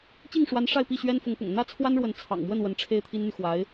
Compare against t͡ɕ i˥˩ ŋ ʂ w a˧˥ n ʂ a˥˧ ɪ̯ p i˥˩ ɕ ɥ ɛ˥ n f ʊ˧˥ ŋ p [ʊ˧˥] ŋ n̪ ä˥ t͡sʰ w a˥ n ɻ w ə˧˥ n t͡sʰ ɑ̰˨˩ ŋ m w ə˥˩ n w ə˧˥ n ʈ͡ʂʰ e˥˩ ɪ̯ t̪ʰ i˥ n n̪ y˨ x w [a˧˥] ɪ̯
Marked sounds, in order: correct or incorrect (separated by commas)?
incorrect, correct